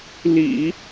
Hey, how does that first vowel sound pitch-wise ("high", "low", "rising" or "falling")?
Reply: low